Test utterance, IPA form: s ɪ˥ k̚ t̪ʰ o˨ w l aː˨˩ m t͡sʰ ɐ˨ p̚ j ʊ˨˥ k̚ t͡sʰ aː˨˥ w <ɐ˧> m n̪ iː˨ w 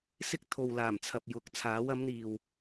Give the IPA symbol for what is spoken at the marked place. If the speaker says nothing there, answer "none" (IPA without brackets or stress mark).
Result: ɐ˨˥